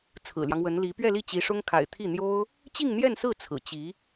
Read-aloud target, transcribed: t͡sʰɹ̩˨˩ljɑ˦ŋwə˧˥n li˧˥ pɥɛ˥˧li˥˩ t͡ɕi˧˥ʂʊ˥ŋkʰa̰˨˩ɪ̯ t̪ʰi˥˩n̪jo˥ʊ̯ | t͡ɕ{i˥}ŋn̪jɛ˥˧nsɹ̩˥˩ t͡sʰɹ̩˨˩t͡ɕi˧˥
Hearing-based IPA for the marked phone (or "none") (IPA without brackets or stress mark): i˥˧